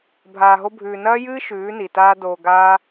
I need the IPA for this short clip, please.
bʱ aː˧ ɦ o˦ bʱ ʉː˧ n ɐː˦ j ɨː˦ ʃ ʉː˨˦ n i˨ t aː˦ d oː˧ ɡ aː˦

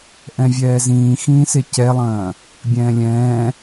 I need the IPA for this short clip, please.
ʔ ɛ̃ vʲ ɛː z ĩː x ĩː s e c ɛ lˠ ɐ̃ː | bʲ ɛ̃ː lʲ ɛ̃ː

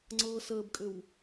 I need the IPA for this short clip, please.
ŋ͡ǀ ɤ s əː b kʼ ʏ w

